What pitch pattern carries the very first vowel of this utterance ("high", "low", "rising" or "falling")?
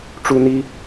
high